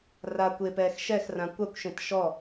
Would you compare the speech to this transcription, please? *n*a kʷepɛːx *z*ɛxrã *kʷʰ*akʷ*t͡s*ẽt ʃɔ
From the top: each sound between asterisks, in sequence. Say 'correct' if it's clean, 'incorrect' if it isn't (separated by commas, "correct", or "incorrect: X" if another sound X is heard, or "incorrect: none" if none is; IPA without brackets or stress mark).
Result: incorrect: r, incorrect: ʃ, incorrect: kʷ, incorrect: ʃ